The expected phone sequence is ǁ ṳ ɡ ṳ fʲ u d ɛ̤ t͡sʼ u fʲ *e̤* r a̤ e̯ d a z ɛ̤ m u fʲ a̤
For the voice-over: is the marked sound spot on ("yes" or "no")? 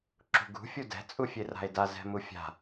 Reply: no